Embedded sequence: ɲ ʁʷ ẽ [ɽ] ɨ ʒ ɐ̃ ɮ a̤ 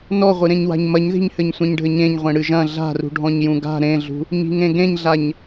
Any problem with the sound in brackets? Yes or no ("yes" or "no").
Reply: no